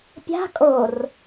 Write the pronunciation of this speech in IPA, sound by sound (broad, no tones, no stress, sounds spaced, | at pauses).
pʲ a̤ kʼ o r